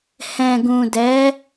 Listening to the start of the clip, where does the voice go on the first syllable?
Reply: low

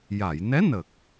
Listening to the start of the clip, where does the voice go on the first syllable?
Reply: low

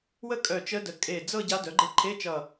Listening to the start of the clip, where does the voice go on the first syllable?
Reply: falling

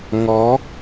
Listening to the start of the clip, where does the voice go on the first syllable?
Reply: rising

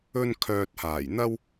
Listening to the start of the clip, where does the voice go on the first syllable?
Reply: high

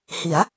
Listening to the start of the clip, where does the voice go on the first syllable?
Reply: rising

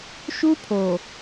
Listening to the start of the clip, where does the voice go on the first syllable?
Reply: high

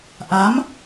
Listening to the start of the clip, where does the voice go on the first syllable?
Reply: rising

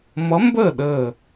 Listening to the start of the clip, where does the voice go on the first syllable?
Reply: rising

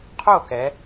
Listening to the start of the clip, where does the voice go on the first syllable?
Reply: falling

